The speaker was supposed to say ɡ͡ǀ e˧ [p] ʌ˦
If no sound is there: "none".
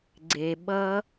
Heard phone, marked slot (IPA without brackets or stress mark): ɓ